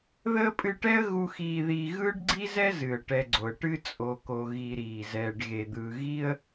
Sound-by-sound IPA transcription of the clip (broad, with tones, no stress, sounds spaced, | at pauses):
ð əː˥ pʼ ɨ˦ ʈ ɛ˥ ə̯ ɣ u˥ x iː˦ ð iː˦ ɣ ɯː˥ ɖ ɡ͡ǀ i˥ z ɛ˥ z ɨ˩ ə̯ ʈ ɛ˨ ɡ͡ǀ o˩ ə̯ ʈ ɨ˦ t͡sʼ o˨ k o˨ ɣ i˨ ɾ iː˩ z ɛː˨ ɖ ɣ e˩ d̪ ɯː˨ ɣ i˦ ə̯